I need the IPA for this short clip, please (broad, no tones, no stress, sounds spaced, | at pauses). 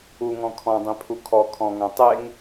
u ŋ ɔ̃ kʰ ɔ̃ dˤ ẽ pʰ u kʰ ɔ kʰ ɔ̃ ŋ ã tˤ e ŋ